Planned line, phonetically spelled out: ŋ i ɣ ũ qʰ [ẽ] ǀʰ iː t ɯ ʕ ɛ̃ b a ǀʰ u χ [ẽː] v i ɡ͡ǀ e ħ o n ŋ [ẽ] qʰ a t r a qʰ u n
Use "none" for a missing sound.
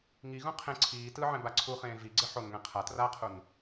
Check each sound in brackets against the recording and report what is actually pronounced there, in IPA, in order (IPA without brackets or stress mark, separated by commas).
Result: ẽ, ẽː, ɛ̃